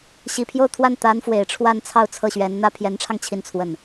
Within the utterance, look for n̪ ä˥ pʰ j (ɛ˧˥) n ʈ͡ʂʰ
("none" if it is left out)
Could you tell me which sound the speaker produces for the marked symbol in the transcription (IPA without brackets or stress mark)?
ɛ˧˥